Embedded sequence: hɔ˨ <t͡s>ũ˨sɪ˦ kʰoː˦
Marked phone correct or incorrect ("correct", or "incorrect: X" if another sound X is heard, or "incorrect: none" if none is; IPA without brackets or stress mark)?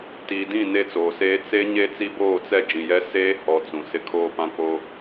correct